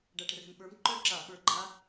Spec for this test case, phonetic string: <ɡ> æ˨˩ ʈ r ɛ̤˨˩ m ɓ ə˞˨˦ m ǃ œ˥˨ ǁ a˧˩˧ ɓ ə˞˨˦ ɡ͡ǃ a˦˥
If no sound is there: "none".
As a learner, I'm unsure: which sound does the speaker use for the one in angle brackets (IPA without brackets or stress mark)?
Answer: ɖ